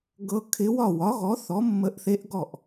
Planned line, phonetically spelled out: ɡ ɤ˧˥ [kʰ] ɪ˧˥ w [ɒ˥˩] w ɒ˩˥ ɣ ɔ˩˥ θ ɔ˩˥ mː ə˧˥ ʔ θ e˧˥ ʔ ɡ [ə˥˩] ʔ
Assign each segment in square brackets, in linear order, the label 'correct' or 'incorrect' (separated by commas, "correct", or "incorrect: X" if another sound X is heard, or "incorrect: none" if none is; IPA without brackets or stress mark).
correct, correct, incorrect: ɔ˥˩